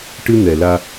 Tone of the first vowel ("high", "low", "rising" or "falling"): high